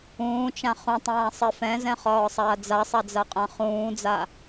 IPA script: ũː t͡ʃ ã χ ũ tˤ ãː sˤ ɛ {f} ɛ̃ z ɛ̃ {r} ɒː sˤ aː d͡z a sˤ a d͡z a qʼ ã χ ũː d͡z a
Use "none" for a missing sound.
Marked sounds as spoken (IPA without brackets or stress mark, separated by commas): f, χ